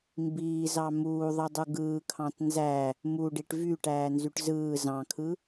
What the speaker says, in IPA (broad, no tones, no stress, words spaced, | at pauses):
mbiːzɑ muːðˤɯdˤu ɡɯːkʰɑ̃t nzæ | muɖiʈ vyʈæːnzyʈ zɯː zɑ̃kʰɯ